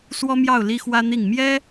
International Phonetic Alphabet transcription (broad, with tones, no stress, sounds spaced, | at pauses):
s w ɔ˥ m j ɑ˥˩ ʊ̯ l i˥ x w ä˥ n̪ i˥˩ ŋ m j ɛ˥